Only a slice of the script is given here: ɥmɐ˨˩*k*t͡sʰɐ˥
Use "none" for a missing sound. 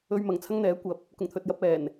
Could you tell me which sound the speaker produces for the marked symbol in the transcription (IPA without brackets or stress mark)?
ŋ